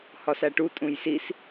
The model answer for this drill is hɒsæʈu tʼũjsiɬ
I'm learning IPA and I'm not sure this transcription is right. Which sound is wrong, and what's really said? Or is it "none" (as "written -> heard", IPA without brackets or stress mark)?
ɬ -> s